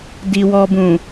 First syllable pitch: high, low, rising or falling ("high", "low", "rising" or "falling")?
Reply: low